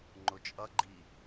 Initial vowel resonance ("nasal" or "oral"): oral